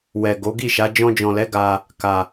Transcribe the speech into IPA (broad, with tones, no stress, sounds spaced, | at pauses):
w ɛ˨ ɡ o˨˦ ɡ i˦˨ ʃ a˨˦ d͡ʒ ɔ̃˧ d͡ʒ ɔ̃˨ l ɛ˨˦ ɡ a˧ | k a˧